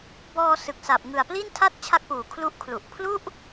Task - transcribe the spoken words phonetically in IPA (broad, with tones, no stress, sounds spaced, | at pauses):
b ɔː˧ s ɯ˨˩ k̚ s a˨˩ p̚ ŋ ɯ˨˩ a̯ p l i˥˩ n tʰ a˥˩ t̚ t͡ɕʰ a˦˥ k̚ p uː˨˩ kʰ l u˦˥ ʔ kʰ l u˨˩ ʔ pʰ l u˥˩ ʔ